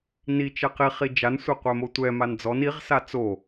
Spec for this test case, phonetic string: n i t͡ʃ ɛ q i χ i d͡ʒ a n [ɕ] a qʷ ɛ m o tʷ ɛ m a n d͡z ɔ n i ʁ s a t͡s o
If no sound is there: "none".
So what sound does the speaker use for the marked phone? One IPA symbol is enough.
sʷ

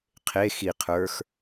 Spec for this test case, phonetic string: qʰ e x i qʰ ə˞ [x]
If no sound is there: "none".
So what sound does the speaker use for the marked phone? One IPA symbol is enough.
x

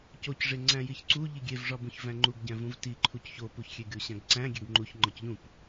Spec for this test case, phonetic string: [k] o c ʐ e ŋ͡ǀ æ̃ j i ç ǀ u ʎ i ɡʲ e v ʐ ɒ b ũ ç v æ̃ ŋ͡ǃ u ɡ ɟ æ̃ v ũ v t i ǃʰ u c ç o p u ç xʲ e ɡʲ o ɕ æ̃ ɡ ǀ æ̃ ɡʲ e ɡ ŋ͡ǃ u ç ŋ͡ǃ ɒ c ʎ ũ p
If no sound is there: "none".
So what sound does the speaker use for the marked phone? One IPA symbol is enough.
c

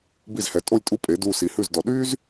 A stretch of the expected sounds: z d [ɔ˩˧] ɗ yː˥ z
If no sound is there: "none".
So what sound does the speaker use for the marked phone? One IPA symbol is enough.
ɔ˩˧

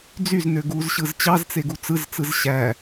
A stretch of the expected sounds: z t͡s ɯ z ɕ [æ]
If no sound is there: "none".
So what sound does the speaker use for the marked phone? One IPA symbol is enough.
æ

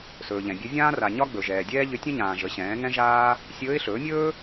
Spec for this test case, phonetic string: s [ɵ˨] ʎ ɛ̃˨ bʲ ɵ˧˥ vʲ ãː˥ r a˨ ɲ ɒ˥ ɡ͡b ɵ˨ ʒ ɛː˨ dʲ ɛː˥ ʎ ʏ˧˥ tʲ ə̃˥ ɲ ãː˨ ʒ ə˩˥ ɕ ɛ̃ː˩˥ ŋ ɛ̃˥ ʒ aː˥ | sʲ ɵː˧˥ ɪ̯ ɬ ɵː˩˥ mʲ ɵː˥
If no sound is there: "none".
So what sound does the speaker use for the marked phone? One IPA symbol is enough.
ɵː˨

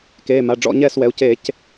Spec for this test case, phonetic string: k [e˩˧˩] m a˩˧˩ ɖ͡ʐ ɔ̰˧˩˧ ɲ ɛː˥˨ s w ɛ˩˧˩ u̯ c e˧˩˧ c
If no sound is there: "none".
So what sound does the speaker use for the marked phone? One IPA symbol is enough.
eː˩˧˩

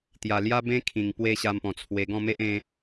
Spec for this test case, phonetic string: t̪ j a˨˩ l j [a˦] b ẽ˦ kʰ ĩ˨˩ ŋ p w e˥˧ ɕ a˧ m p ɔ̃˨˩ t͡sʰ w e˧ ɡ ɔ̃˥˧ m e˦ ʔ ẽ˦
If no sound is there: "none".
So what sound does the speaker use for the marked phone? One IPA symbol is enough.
a˦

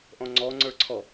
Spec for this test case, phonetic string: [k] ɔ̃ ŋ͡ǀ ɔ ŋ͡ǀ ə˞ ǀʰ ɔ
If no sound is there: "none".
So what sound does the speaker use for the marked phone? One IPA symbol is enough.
ʔ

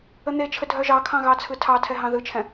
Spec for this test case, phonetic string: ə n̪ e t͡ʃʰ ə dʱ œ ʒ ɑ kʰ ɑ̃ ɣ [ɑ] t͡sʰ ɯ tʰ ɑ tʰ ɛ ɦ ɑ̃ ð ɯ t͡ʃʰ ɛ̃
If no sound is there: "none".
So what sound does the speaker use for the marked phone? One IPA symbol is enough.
ɑ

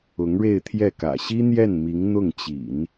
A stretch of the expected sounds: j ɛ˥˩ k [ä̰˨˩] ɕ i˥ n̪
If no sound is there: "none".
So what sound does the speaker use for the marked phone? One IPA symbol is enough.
ä̰˨˩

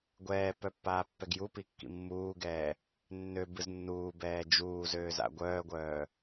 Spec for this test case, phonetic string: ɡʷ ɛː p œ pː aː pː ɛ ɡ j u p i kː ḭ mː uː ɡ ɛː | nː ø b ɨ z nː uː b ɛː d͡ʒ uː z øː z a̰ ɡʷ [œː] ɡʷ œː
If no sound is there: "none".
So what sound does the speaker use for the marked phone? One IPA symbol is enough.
œː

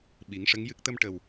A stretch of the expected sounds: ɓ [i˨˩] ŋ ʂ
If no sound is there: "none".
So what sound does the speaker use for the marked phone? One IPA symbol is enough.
i˨˩˦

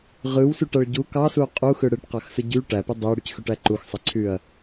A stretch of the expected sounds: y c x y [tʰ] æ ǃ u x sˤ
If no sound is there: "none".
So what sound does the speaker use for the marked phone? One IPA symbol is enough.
ʈ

